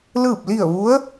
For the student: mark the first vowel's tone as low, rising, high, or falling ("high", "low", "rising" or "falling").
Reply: falling